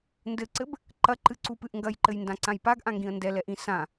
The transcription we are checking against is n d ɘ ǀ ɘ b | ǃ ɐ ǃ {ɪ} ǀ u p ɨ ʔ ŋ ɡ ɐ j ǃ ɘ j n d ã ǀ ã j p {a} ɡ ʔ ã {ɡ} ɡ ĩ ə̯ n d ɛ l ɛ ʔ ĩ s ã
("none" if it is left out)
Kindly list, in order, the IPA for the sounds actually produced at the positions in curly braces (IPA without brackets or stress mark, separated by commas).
ɨ, a, ŋ